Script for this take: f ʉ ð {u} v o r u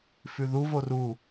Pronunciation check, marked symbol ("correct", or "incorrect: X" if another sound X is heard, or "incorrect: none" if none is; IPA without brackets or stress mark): correct